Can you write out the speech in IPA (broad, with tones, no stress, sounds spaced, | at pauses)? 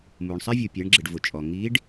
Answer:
m u˩ ɳ sˤ ɪ˥ vʲ u˩ pʲ ɛ˩˧ ɳ ɡ͡ǁ ɪ˩ ɖ v ʊ˩ t͡ʃʼ ɔ˩ ŋ i˧˥ ɖ